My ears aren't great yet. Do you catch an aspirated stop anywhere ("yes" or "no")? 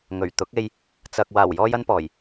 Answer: no